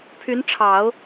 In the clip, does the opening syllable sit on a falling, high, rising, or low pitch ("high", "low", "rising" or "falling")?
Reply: rising